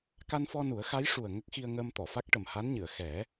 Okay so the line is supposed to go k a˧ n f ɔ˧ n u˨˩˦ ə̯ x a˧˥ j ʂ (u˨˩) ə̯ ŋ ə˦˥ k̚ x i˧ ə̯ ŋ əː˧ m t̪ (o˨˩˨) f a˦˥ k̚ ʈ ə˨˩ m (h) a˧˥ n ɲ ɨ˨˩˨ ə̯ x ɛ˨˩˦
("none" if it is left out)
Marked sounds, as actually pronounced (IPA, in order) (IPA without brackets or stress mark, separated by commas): u˨˩, ɔ˨˩˨, h